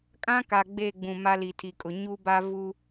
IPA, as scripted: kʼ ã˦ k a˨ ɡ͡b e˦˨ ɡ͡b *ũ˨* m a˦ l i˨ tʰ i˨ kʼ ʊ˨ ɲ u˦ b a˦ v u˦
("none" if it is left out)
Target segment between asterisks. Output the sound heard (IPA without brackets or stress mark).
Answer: ũ˨